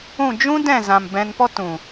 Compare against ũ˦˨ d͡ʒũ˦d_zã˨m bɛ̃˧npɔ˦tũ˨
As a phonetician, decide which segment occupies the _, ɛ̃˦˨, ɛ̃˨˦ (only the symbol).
ɛ̃˦˨